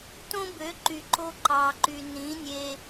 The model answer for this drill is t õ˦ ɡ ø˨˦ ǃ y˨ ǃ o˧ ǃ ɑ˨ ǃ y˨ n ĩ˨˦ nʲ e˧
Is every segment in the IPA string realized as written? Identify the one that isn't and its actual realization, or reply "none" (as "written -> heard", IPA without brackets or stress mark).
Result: ɡ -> b